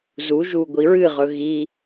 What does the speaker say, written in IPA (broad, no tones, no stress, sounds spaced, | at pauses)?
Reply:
z u ʒ u ɡʷ i ɹ ɨ ʁ ɵ ɣ i